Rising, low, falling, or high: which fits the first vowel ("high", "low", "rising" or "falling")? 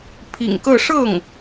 low